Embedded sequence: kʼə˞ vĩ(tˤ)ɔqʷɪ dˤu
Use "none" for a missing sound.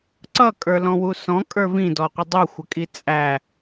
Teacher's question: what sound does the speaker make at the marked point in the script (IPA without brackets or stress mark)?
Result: d